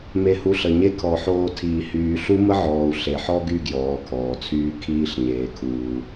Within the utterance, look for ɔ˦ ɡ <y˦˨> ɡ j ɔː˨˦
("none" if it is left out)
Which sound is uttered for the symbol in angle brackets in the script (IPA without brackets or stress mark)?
y˦˨